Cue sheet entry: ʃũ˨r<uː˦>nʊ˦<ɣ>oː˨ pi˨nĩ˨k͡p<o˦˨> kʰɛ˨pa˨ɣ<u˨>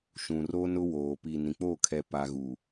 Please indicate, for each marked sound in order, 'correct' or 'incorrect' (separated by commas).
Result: incorrect, incorrect, correct, correct